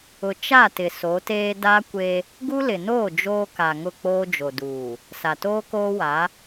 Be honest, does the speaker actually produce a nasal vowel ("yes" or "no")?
no